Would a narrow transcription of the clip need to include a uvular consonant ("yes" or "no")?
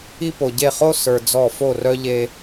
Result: yes